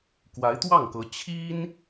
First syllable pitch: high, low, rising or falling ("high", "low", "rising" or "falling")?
rising